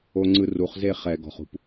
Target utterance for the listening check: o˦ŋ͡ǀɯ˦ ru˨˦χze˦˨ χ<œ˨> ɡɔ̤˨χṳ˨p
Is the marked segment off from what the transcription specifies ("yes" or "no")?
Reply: yes